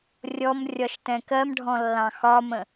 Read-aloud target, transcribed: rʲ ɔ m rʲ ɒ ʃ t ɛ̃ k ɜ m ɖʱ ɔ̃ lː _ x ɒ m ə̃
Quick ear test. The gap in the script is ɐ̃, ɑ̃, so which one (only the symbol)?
ɑ̃